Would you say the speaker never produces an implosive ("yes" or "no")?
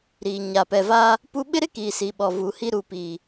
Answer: no